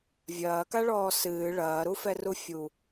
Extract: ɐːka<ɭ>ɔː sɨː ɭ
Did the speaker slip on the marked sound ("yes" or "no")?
no